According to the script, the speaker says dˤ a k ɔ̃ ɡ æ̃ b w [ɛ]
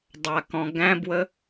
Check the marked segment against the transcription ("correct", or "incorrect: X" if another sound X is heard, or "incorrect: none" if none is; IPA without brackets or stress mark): incorrect: ə